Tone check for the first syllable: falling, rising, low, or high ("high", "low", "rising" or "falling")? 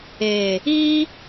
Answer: low